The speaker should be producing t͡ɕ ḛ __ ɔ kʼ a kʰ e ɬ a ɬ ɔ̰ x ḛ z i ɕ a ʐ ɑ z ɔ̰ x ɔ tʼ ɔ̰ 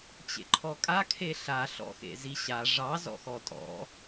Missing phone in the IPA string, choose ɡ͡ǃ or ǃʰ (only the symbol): ǃʰ